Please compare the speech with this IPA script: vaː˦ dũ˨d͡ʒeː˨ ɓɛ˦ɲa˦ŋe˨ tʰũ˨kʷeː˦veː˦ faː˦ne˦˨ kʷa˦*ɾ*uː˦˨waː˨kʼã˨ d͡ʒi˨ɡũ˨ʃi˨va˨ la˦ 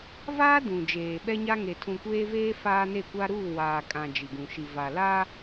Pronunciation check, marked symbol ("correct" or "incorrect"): correct